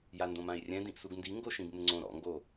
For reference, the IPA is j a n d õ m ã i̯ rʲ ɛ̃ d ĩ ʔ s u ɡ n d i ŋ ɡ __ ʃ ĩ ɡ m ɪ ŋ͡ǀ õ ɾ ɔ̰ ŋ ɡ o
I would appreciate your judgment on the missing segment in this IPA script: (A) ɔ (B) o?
B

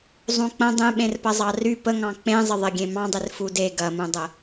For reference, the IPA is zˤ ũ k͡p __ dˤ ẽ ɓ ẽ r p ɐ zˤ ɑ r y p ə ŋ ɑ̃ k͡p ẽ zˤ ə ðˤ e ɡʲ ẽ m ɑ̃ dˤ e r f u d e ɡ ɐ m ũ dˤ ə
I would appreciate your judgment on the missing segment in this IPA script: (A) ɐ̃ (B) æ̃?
A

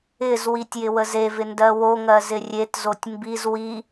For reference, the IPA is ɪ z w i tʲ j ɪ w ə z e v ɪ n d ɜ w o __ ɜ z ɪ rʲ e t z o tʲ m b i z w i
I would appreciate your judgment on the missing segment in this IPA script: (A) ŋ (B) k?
A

